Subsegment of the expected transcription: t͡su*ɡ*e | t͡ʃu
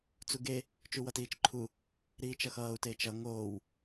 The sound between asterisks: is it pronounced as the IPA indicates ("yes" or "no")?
yes